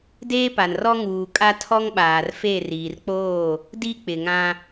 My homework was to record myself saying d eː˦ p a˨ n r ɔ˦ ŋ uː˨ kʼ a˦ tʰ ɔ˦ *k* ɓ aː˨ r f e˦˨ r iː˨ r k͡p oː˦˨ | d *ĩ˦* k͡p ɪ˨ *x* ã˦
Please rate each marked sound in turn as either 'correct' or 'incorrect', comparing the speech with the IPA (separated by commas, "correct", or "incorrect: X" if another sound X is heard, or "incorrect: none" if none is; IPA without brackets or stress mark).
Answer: incorrect: ŋ, incorrect: i˦, incorrect: ŋ